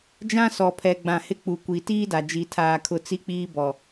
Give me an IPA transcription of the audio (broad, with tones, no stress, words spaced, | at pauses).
d͡ʒã˦sɔ˨pʰɛ˨ ɡ͡bã˨hɪ˦ k͡pu˨kʷi˨ tiː˦da˨ d͡ʒi˦tʰaː˦kʰʊ˦ t͡si˦k͡piː˦bɔ˨